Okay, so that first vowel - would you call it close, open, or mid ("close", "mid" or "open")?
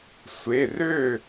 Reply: mid